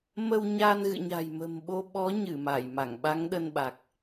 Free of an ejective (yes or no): yes